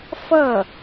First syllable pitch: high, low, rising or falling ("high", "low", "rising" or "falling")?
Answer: falling